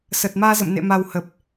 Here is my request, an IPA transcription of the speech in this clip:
s əː˨˩ t̚ m aː˧ z ə̰˧˨ m n ḛ˧˨ m a˨˩ w h ə˨˩ p̚

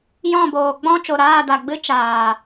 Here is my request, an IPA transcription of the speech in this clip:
j ɔ̃˦˨ b oː˨ ɡ͡b ɔ̃˦ t͡ʃ o˨ ɾ aː˦˨ d a˨ ɡ͡b ɨ˦ t͡ʃ aː˨

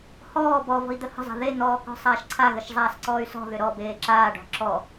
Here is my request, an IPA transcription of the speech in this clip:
h ɔː b ɔ v ɔ̤ i̯ d̪ ə h ə̤ zˤ a̤ ð e n̪ ɔː k ɔ̤ sˤ aː ʃ ǀʰ a ɣ ə ʃ zˤ aː s ǀ ɔː y̯ s ɔ̤ ð ʏ ɾ ɔ b eː ǁ aː ɖ ɔ̤ ǁ ɔ

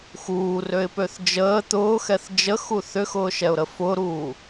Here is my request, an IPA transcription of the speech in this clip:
x uː r ø ɪ̯ p ø θ d͡ʒ əː t̪ ʊː x ɛ θ d͡ʒ ə x u θ ʏ x ʊː ʃ ɛ ʊ̯ ɾ ə f ʊː ɾ uː

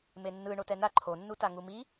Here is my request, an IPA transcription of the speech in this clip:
m e nː ɯ ɳ o t ɛ n a ǃʰ o nː u t a ŋ u m i

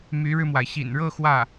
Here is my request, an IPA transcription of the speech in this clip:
m y˧˥ ɻ ɻ̩˧ m w a˩ ɪ̯ ɕ ḭ˨˩ n ɻ ɤ˥˧ x w ä˥˩

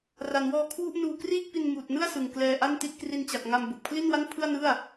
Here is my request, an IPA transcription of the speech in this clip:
r a˩˦ n w ɔː˧ kʰ w u˥˩ ʔ n uː˧ k r iː˥˩ k̚ p i˧ n m uː˨˩ t̚ n ɯ˥˩ a̯ s ɯ˨˩ ŋ k l ɛː˧ ʔ a˥˩ n t i˥˩ t̚ k r i˧ n t͡ɕ a˨˩ k̚ ŋ a˧ m b o˨˩ k̚ pʰ l i˥˩ n w a˥˩ n pʰ ɯ˥˩ a̯ n ɯ˥˩ a̯

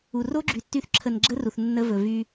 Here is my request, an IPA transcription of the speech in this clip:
u˨ r o˦ ɡ͡ǁ y˨ tː y˧ θ ǁʰ ə˨ n ɡ͡ǁ ə˦ r u˨ θ nː ə˧ v ɵ˨ v y˦

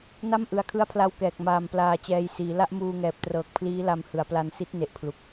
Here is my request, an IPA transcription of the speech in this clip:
n a˥˩ m ʔ ɯ˨˩ a̯ kʰ ɯ˦˥ a̯ pʰ l a˧ w k ɛː˨˩ k̚ m aː˧ m p l aː˧ t͡ɕ ɛː˧ j s iː˩˦ l a˥˩ ʔ m uː˧ ŋ ɛː˨˩ p̚ t r ɤː˨˩ k̚ pʰ l iː˦˥ l a˧ m h ɯ˩˦ a̯ p l a˧ n s i˦˥ t̚ n e˨˩ ʔ pʰ l u˨˩ k̚

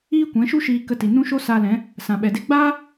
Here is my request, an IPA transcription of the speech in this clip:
iː˦ kʷ ɛ̃˨˦ ʃ u˦ ʃ iː˧ k ə˧ t i˨ n ũ˦ ʃ o˦ s aː˧ l ɛ̃˨˦ | s ã˨ ɓ ɛ˨ d e˦ ɡ͡b aː˦

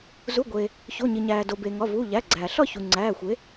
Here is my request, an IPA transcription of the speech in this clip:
z u˩˧˩ ɡʷ eː˩ | ç o˩˧˩ ɲ i˩ ɲ æː˩ d o˩ b eː˩ ŋ ɒ˩˧˩ v uː˩˧˩ ʎ æ˩˧˩ ɡ͡ǀ æː˩ ɬ ɒ˥˨ ç u˩ ŋ͡ǀ æː˩˧˩ xʷ e˩˥

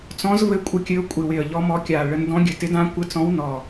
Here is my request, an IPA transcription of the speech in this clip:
t͡s ɔ̃˧˥ z v ɘ˧˥ kʷʼ ə˧˥ kʲ ɘ˧˥ ʊ̯ kʷʼ ɪ˧˩ w ɪ˧˩ ə̯ ʎ ɔ˧˥ m ɔ˧˥ kʲ a˧˩ ɭ ə˧˥ n d ɔ̃˧˥ ɡʲ ɘ˧˩ t ɪ˧˥ d ã˧˥ kʷ ɘ˧˥ t͡s ɔ̃˧˥ w n ɔ˧˩

